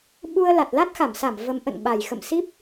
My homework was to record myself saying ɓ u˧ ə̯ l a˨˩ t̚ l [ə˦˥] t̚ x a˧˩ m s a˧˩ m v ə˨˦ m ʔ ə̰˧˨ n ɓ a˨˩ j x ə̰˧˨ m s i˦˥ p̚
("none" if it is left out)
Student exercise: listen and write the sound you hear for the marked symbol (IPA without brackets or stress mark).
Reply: a˦˥